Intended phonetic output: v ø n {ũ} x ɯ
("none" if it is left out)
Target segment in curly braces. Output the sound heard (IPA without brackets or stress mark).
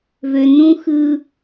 ũ